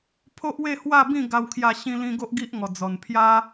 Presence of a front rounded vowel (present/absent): absent